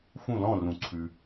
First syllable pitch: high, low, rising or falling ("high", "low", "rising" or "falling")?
falling